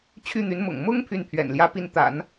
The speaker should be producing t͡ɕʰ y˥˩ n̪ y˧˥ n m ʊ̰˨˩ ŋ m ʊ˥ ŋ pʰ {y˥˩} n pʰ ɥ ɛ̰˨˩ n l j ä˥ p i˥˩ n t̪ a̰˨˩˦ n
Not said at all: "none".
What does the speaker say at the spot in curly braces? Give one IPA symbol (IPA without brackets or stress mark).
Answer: y˥˩